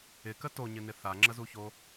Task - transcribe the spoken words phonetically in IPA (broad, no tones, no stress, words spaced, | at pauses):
ɪkə toɲɪnɪ θaŋ͡ǁəzuço